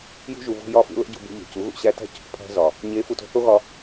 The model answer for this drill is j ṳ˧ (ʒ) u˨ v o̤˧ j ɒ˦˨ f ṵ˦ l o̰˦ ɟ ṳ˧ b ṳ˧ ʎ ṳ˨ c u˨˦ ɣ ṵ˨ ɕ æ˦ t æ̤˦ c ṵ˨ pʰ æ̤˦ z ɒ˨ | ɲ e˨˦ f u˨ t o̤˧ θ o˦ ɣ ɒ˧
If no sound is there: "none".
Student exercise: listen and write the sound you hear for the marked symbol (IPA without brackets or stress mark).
ʒ